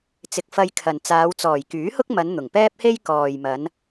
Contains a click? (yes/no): no